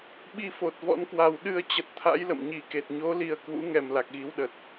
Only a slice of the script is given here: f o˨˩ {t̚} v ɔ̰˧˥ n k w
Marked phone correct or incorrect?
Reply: correct